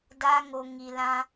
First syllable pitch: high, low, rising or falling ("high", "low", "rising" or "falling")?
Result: high